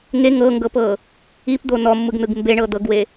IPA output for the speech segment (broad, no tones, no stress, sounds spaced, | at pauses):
ŋ e ŋ ɤ ŋ ɡ ɤ p ɤ | i p d̪ o n ɔ mː ɯ ɡ n ɯ ɡ m b e ɳ ɤ d̪ ɤ ɡ w e